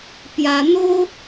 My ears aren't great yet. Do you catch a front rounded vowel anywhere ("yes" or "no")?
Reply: no